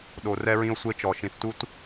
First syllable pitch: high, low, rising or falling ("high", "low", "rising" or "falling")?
low